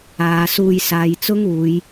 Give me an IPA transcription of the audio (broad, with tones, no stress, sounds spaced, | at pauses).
aː˨˧ s uː˧ j s aː˨˧ j t͡s ʊ˥ ŋ uː˨˧ j